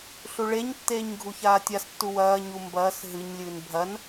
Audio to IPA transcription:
ɬuɭeɲtːeːɲ ɡʱuçaːtʲastːu wɐːɲu mbɐːs ɦɨɲlʲɨːn bʱɐn

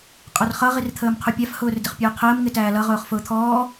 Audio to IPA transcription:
qʼʊrχʌ ʁirt̪ʰəːmqʰupʲæf hʊːrdɪχpʲʊːqʰəːm ŋɪtæːlʌ ʁʊːχfʊːt̪ʰɔː

